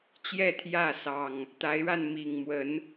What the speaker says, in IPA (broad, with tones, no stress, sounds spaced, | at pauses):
t͡ɕ j ɛ˥˨ t̪ʰ j ä˥˨ s ɑ˨˩ ŋ | t̪ a˨˦ ɪ̯ ɻ a˧ n m i˨˩ ŋ m w ə˨˦ n